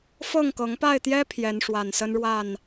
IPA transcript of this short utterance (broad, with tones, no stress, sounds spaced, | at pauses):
f ɤ˥˨ ŋ k ɤ˨˦ ŋ p a˥˨ ɪ̯ t̪ j ɛ˦ pʰ j ɛ˨˦ n ʂ w a˨˩ n s ə˦ n ɻ w a˥˨ n